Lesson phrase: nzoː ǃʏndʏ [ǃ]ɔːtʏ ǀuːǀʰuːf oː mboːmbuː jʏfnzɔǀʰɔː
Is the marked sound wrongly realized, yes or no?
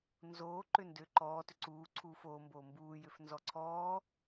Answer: no